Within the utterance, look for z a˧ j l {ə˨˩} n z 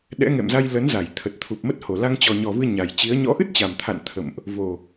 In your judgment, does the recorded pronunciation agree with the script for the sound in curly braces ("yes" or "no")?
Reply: no